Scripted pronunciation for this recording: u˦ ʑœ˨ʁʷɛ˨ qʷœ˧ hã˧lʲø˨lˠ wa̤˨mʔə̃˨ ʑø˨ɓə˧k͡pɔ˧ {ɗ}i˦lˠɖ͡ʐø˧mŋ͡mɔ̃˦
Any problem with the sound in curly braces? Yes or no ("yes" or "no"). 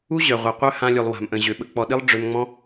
no